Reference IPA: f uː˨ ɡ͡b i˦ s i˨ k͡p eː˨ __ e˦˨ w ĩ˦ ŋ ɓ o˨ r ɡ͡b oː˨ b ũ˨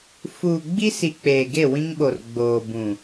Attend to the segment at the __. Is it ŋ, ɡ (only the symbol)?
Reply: ɡ